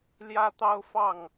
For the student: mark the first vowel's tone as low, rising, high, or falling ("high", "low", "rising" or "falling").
high